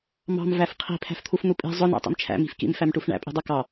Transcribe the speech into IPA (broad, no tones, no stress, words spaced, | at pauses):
mɑ̤m væfqʰi̤ pʰæ̤ft̪ʰufn̪upʼi̤ zˤʊ næ̰tˤḭmt͡ʃʰæ̰ mi̤fkḭm fæmʈufɳæ̰ pʼi̤dˤʌkɑ